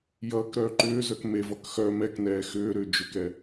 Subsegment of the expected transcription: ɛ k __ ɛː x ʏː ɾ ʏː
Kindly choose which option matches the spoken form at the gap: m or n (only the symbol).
n